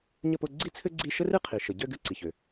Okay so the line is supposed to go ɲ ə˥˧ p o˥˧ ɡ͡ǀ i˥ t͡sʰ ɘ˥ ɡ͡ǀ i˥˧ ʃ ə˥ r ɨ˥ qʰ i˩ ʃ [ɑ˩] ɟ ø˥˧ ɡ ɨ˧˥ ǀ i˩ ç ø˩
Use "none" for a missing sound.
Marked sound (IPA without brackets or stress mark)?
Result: ə˩